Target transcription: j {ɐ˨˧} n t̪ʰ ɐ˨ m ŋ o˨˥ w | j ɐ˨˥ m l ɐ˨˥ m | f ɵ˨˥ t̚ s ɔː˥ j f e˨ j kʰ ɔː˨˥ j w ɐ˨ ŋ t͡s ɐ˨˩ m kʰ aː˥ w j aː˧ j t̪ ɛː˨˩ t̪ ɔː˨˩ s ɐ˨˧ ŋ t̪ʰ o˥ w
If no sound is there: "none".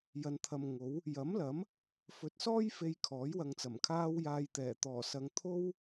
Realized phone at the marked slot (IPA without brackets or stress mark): ɐ˨˧